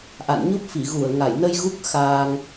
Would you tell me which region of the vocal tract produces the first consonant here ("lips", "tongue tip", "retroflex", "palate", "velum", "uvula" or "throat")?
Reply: throat